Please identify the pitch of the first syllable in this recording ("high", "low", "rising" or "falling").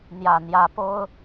low